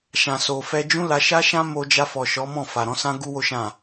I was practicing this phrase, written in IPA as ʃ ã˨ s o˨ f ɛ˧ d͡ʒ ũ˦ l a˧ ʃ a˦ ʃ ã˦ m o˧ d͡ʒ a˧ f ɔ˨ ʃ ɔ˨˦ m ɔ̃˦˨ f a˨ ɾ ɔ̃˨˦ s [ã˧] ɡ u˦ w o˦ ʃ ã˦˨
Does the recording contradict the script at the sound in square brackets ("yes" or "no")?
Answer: yes